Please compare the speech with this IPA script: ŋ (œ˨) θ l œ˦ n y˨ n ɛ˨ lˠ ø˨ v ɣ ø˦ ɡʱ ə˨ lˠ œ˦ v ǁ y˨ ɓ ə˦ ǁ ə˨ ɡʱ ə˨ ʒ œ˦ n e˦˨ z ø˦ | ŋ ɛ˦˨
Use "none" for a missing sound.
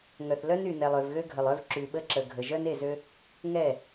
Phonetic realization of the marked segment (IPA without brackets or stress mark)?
œ˨